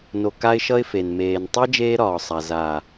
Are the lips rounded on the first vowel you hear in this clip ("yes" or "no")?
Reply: yes